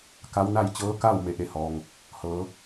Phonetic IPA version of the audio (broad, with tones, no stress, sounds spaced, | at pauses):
k a˧˥ w n a˥˨ j t͡ɕ ɤː˧˥ k a˥˨ w m e˩˧ ʔ e˧˩ h ɔː˩ ŋ | h ɤː˩˧